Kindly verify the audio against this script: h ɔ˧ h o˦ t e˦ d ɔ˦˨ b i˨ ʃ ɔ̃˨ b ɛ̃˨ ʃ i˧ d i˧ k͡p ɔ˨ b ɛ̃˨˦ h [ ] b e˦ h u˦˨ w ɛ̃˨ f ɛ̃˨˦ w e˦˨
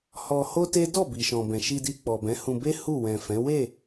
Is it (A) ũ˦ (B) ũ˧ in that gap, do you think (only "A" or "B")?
B